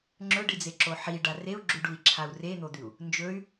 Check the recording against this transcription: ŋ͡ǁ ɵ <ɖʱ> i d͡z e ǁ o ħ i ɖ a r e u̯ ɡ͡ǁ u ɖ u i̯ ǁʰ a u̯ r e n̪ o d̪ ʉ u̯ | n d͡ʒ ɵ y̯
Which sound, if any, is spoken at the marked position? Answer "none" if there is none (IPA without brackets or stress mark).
ɖ